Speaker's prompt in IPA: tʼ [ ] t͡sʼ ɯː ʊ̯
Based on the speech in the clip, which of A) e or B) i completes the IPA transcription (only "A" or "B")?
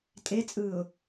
A